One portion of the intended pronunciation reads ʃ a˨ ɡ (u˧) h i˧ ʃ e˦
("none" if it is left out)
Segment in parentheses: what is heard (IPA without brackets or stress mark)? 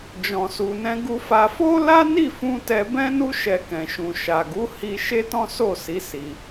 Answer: u˨˦